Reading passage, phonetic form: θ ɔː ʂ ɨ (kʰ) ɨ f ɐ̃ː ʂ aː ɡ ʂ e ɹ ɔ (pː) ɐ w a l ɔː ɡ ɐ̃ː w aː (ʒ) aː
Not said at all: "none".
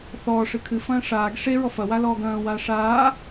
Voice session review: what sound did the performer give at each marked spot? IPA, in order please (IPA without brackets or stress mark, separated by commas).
kʰ, f, ʂ